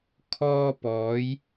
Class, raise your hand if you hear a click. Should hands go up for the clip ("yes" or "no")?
no